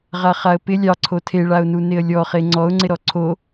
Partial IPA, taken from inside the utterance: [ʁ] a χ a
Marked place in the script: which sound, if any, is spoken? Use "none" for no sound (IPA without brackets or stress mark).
ʁ